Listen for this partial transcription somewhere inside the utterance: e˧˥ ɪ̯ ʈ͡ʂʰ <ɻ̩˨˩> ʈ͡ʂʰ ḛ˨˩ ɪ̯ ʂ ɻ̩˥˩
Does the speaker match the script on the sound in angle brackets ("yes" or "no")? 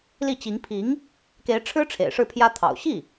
no